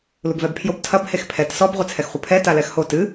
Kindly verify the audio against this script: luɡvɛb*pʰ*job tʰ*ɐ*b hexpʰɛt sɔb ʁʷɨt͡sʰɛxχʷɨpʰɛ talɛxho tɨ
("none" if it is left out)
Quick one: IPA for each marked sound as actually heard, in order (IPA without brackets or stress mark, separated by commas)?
pʰ, ɐ